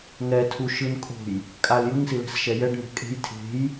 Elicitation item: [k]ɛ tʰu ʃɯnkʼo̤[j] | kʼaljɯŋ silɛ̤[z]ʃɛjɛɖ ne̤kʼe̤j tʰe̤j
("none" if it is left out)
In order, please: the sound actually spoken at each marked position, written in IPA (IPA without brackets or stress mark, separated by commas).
ŋ, j, s